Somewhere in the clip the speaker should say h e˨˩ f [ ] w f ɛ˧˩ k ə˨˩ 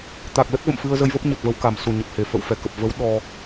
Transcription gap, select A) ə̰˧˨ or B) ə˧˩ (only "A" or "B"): A